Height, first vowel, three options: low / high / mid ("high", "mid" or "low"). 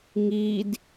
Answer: high